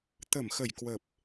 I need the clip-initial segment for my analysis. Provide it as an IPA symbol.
t̪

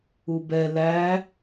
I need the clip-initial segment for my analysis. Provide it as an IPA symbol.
u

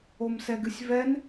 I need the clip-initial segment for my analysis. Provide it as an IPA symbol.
o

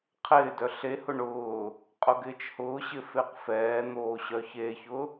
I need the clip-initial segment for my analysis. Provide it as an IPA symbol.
qʰ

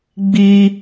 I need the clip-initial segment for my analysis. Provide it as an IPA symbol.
ɡ͡b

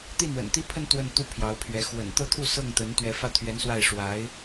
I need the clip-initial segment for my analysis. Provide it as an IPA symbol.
t̪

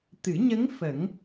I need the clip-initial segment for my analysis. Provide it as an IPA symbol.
t̪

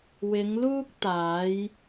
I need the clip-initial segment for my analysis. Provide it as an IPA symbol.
w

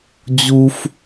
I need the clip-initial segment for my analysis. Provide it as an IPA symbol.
d͡ʑ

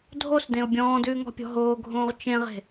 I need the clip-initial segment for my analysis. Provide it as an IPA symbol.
dʱ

